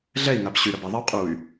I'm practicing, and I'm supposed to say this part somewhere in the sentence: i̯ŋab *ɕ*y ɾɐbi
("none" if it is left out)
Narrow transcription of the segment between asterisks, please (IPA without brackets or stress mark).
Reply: ɕ